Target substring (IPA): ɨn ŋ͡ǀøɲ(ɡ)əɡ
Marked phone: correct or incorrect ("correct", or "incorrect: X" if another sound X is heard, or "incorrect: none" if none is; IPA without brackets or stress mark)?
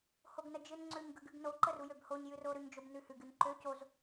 correct